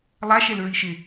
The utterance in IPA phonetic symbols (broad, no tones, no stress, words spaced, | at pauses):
lˠaʃɛl ɹiʃɪ